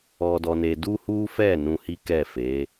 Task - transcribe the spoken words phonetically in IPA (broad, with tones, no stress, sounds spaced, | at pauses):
ɔ˧ d ɔ˧ n e˧ d u˦ h u˦ f ɛ˦˨ n ũ˧ h i˦ k ɛ˦˨ f e˨˦